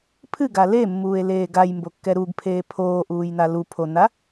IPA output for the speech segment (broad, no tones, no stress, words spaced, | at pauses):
pʰɨɡa lemːuːe̯leː ɡajmbokːɛ ɾuɡpʰeː pʰoːʔuːjna lupʰona